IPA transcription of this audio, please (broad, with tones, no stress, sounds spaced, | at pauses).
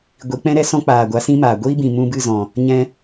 ɡʷ i˨˦ k͡p ɛ̃˦ ɾ ɛ˦ s ɔ̃˦ k͡p aː˨ ɡʷ a˨˦ s ĩ˦ m aː˨ ɡʷ i˦ b ĩ˨ m ũ˧ b ɨ˦˨ z ɔ̃˨ | ɲ ɛ̃˧